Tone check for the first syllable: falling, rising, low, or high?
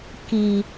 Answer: low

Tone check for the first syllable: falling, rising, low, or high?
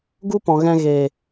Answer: high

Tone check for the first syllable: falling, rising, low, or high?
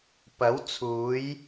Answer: rising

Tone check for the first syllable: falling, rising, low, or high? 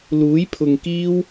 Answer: rising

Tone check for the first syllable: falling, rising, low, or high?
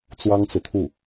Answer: high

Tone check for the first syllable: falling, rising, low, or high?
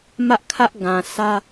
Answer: high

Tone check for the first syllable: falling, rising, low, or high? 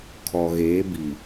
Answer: low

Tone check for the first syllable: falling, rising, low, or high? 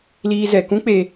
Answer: high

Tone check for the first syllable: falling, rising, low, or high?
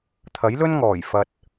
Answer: rising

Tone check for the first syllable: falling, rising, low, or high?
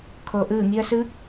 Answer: low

